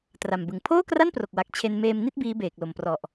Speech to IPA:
t r a˨˩ m b ɯ˨˩ ŋ pʰ oː˥˩ k r a˥˩ n p r o˨˩ k̚ w a˨˩ k̚ t͡ɕʰ e˧ n m eː˧ m n i˥˩ t̚ b iː˦˥ b eː˨˩ k̚ l o˨˩ m p r ɔ˨˩ ʔ

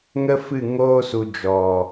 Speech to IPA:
ŋ ə˦ f ɨ˦˨ ŋ oː˧ s u˨ d͡ʒ ɔ˨

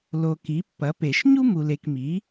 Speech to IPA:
l o˨ k i˩˥ pː ɐ˩˥ p e˨˩˦ ʃ ɲ u˥ m u˨ l e˨ k m i˩˥

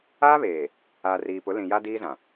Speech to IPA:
aː˦ β eː˨ | aː˨ r iː˨ p ʊ˨˦ l ĩ˨ j a˦ d iː˦ z ã˨

